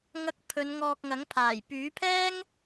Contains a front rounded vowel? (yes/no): yes